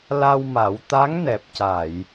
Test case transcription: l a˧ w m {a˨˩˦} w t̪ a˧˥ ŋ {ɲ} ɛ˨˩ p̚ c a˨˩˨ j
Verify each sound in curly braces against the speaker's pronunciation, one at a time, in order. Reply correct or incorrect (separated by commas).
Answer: correct, incorrect